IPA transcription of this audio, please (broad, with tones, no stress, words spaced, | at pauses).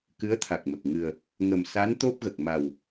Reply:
kɨ˧˥ə̯t̪ʰa˨˩k̚mə˨˩k̚ ŋɨ˨˩ə̯ | ŋə˨˩msa˧˥n t̪o˦˥p̚ɣə˨˩k̚ ma˨˩w